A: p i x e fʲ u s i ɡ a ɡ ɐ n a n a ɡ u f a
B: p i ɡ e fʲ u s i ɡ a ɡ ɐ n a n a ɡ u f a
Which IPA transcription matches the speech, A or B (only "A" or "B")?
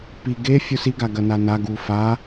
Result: B